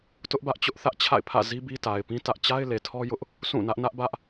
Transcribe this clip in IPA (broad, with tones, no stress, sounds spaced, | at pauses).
t ʊ˦ ʔ b ä˦ ʔ t͡ɕ ʊ˦ ʔ θ ä˦ ʔ t͡ɕʰ a̰˦˨ ɪ̯ pʰ ä̰˦˨ z i˦ b i˦ t a˨ ɪ̯ p ĩ˦ t ä˦ ʔ t͡ɕ a˦ ɪ̯ l e˨ tʰ ɔ˦ j ʊ˦ ʔ | sʰ ũ˦˨ n ä˦ ʔ n ä˦ ʔ b ä˦ ʔ